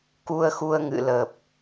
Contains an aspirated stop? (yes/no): no